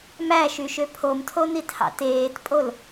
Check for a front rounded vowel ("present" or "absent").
present